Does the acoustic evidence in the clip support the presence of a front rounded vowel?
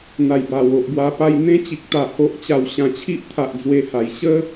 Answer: no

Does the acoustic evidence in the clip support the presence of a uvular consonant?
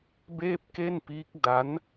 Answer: no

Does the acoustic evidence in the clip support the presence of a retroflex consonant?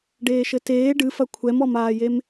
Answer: yes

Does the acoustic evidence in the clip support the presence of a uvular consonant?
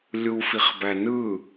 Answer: yes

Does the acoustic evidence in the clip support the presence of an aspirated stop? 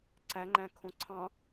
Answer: yes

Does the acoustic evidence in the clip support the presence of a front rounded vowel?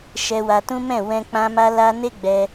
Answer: no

